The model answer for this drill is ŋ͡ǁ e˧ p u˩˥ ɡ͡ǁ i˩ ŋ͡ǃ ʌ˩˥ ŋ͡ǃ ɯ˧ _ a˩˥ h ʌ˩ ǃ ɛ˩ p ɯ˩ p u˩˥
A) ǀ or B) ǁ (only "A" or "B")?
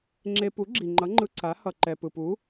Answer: A